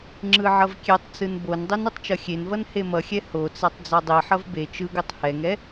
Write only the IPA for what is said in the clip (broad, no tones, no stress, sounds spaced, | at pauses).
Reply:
ŋ͡ǁ ɯ ʕ ʌ v kʲ e tˤ t͡s ɯ n b o n dˤ i n u tˤ t͡ʃ ʌ xʲ e n v ʌ n h e m ʌ xʲ ɛ h o t͡s a tˤ d͡z a dˤ i ħ ʌ v b e t͡ʃ ɯ ɡ u tˤ h ɛ ŋ ɛ